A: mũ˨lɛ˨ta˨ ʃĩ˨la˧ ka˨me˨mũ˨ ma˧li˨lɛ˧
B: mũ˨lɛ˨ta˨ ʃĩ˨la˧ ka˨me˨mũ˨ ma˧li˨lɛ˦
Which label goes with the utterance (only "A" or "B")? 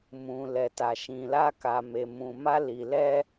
A